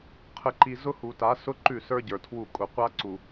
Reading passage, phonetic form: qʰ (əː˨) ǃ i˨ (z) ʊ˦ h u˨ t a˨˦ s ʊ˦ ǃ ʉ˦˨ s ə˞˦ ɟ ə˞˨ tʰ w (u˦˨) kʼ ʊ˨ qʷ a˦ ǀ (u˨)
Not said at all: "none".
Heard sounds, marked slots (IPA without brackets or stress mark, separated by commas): ə˨, z, u˦˨, u˨